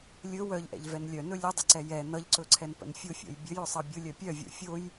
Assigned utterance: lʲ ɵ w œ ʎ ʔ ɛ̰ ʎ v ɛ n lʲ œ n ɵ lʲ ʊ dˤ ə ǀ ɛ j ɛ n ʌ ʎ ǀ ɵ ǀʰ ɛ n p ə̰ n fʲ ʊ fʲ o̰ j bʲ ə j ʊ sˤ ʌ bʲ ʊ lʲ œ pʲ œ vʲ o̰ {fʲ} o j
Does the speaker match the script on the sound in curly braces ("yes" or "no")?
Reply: yes